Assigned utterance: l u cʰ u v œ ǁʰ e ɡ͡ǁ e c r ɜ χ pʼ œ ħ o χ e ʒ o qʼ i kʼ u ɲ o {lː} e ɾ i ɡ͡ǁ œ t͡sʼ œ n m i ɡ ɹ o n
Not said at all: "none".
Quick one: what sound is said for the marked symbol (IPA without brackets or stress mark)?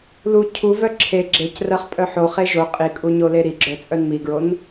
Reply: l